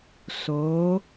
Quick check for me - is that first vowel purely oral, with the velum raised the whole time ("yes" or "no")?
yes